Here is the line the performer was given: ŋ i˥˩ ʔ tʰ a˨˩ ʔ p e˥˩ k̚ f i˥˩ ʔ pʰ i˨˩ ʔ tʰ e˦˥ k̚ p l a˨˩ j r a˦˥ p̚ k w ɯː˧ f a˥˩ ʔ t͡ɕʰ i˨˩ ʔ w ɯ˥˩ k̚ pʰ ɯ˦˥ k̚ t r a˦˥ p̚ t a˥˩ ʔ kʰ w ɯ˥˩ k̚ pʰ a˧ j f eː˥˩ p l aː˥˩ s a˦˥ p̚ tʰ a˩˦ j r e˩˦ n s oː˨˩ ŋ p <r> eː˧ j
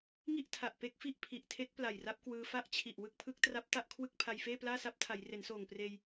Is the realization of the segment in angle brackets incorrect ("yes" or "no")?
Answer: no